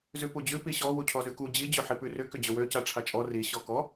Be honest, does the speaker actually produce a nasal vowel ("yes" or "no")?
no